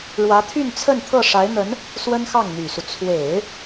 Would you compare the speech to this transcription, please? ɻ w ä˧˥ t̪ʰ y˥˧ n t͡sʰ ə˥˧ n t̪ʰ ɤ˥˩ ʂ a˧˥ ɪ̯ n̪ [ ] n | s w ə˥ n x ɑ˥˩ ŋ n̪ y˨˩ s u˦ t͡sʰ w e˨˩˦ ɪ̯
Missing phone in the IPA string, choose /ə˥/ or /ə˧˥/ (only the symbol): ə˧˥